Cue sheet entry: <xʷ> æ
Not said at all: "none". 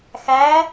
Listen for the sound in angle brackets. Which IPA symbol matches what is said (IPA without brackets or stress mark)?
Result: x